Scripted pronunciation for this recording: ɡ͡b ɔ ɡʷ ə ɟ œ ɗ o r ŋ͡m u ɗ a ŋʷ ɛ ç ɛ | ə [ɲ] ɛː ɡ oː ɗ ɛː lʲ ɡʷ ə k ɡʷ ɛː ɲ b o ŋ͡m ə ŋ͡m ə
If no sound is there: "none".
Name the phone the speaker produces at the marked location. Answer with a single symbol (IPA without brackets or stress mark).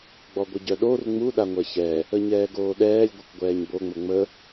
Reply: ɲ